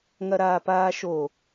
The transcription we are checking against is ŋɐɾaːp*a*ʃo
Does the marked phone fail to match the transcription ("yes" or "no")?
yes